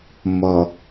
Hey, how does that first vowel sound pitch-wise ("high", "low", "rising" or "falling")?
low